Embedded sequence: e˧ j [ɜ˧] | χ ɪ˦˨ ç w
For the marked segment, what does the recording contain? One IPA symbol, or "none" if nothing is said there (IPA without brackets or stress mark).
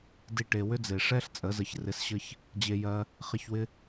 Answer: ɜ˧